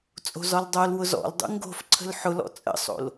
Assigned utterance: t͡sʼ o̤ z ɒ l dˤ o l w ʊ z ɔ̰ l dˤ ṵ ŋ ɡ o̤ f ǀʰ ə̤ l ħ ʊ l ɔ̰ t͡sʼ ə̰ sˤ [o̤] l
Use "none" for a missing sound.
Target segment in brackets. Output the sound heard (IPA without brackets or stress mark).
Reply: o̰